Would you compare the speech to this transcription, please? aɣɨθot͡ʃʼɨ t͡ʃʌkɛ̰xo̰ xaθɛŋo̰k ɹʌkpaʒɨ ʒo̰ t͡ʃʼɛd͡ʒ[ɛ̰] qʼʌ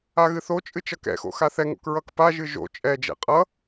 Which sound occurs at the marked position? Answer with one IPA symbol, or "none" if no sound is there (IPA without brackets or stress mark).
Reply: ɛ̰